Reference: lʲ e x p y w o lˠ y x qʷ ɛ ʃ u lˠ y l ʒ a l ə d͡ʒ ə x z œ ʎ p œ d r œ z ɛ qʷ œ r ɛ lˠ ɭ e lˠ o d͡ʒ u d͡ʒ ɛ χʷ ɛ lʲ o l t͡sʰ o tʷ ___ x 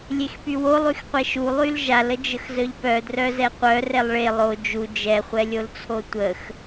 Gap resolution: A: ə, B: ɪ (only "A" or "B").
A